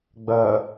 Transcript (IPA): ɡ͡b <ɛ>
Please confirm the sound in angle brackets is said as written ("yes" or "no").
no